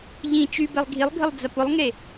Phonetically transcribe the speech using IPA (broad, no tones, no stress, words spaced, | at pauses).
ʎĩ t͡ʃybɛlˠ ɡʱilˠɡʱəlˠd͡zɐ pʊlˠŋe